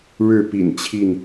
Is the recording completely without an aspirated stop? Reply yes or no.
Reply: no